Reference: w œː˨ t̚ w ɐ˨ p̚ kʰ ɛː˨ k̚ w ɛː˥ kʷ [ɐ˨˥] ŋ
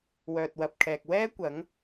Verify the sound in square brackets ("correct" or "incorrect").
correct